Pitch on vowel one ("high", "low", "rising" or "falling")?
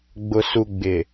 low